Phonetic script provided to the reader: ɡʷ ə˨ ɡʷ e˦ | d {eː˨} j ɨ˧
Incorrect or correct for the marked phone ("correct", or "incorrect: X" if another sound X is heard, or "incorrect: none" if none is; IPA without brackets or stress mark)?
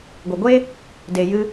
incorrect: e˨